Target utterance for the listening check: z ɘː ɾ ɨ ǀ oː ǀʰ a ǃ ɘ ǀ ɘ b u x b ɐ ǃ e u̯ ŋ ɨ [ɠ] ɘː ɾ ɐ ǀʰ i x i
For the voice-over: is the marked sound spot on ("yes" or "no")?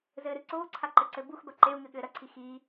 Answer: yes